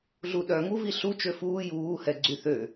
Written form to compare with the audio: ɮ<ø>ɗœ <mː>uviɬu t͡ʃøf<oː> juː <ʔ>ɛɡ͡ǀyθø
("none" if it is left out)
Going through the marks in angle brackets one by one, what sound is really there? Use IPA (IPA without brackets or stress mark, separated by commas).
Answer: u, ŋ, uː, h